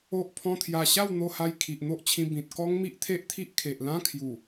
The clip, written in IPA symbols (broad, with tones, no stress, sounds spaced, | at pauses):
o˦ ʔ pʰ ɔ̃˦ t̪ʰ j a˧ ɕ a˥˧ w n̪ o˧ h a˧ j kʰ i˨ ʔ n̪ o˦ ʔ t͡ɕʰ ĩ˧ b ĩ˨ t̚ k ɔ˦ ŋ m i˦ ʔ t̪ʰ e˦ ʔ t̪ʰ i˦ ʔ kʰ e˨ ʔ l ã˦ kʰ j u˨˩